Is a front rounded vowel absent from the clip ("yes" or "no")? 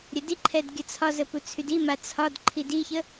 no